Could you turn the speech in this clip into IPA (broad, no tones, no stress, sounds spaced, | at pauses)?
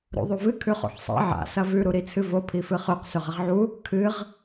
ɾ ṵ ðˤ u v ɨ kʰ ʉ χ o̰ ħ sˤ ḛ ʕ a̰ s ɐ v ʉ ɾ u ɾ i t͡sʰ ɨ v o pʰ i f ɨ χ ʉ q s ɵ ʁ ɐ ʁ ʕ u | kʰ ɨ ʁ